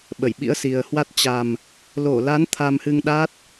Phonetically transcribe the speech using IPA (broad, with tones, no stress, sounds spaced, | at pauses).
ɓ ə˧˩ j ɓ ḭ˧˥ ə̯ s i˨˩ ə̯ h w a˦˥ t̚ t͡ɕ a˨˩ m | l o˧˩ l a˨˦ n t̪ʰ a˧ m h ɨ˧ ŋ ɗ a˦˥ t̚